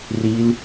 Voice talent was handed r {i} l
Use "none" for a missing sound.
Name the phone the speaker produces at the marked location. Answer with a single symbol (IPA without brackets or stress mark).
i